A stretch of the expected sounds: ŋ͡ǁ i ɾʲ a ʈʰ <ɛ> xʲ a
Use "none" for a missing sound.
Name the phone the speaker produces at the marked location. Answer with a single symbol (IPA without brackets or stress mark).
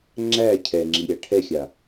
ɛ